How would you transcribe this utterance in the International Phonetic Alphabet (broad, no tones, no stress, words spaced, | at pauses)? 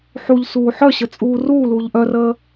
ħuʎsuː ħœɕə t͡sʼuːruːluːʎ ʔœrəː